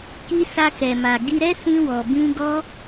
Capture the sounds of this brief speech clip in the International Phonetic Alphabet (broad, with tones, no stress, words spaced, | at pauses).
ki˧sa˧kɛ˨ma˨ ɡi˧ɾɛ˦ sĩ˧wɔ˨bĩ˧ ɡɔ˦